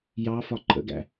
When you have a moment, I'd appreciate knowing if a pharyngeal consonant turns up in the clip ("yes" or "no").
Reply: no